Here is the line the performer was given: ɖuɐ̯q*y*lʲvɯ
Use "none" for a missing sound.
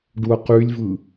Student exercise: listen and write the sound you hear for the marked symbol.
y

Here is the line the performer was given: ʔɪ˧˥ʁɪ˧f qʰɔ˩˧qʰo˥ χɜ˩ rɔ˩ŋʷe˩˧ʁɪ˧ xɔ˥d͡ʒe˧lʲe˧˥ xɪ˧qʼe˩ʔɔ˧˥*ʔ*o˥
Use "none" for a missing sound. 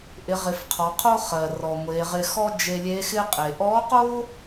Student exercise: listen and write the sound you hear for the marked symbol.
q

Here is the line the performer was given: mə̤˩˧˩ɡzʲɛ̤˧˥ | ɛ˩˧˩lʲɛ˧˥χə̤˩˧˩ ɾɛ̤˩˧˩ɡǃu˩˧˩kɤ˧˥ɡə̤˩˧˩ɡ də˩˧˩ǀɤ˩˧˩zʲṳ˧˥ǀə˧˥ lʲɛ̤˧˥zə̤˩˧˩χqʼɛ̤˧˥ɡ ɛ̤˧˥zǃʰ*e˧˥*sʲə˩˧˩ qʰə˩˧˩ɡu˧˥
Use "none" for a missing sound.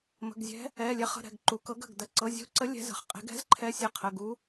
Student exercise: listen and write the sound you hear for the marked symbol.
ɛ˧˥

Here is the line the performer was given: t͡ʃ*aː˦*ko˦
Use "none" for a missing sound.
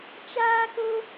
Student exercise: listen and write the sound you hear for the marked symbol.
aː˦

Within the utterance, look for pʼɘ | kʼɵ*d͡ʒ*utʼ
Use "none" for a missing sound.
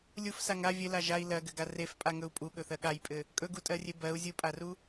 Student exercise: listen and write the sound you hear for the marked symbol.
ɡ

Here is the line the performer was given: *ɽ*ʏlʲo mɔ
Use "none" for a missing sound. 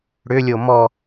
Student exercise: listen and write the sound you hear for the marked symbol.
ɽ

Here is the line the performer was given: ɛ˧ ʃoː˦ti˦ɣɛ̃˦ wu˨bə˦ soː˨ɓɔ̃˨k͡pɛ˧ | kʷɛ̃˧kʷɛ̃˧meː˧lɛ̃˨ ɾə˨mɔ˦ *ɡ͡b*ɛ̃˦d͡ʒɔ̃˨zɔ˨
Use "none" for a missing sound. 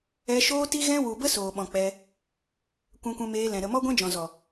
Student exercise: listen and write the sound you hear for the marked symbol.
ɡʷ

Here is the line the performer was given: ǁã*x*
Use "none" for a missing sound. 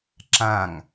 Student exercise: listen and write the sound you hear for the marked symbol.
ŋ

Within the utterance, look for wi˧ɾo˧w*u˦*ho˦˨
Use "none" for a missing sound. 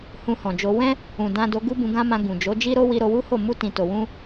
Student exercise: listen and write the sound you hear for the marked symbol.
u˦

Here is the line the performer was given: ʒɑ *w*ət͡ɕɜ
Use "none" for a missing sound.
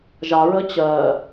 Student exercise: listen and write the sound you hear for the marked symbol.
ɹ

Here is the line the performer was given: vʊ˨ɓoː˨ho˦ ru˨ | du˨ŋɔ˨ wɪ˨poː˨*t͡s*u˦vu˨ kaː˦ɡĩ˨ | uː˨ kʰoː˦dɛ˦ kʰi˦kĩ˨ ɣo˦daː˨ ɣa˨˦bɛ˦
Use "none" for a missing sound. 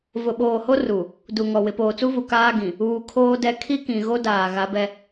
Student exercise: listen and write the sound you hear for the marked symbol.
t͡s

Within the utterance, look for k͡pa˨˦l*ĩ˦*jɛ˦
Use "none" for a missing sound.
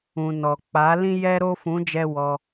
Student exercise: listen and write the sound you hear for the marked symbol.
ĩ˦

